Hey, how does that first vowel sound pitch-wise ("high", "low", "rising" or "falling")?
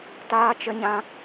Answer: high